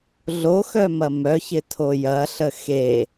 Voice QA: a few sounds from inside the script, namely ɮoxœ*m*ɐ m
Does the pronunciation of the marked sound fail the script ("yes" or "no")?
no